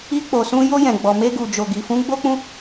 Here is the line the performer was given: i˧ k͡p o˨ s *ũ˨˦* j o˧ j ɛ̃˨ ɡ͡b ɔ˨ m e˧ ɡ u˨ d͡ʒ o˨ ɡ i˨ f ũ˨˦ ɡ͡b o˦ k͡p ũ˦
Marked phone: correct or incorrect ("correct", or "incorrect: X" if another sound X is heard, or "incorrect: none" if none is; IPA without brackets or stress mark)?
incorrect: ũ˧